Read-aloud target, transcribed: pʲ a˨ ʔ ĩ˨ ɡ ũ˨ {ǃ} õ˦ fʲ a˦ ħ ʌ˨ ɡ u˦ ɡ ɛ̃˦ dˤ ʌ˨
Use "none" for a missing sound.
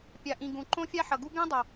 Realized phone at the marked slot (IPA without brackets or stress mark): ǃ